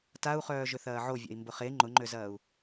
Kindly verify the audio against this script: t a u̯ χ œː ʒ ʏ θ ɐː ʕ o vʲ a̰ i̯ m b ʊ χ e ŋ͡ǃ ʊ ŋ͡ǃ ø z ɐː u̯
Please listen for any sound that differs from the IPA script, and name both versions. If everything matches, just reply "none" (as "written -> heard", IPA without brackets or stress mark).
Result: none